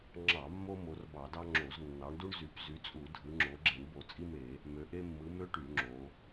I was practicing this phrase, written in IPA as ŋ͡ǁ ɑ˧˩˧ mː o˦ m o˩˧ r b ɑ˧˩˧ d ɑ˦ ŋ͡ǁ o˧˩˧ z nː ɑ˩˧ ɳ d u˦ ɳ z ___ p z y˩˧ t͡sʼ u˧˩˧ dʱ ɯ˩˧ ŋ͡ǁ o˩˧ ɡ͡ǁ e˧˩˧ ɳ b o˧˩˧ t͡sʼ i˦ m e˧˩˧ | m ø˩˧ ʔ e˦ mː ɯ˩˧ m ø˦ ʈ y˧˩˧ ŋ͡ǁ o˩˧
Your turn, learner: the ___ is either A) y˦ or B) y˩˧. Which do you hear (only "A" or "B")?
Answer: B